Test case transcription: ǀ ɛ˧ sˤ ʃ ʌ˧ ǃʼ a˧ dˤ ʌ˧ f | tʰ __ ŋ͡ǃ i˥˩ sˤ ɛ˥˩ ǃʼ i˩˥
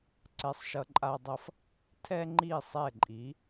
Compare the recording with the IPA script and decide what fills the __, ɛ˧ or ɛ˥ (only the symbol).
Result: ɛ˥